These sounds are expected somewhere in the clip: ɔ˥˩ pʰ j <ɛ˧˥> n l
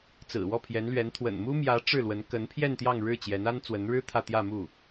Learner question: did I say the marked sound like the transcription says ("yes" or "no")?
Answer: yes